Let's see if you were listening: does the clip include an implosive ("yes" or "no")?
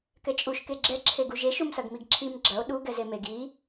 yes